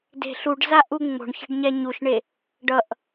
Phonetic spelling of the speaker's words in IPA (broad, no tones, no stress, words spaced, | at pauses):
de̤ ɬuɖzaʔu ŋ͡mo̤ɳçe̤ɖɲɛ ɲuʃɳe | ɖʌʔ